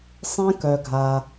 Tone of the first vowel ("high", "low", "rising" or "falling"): high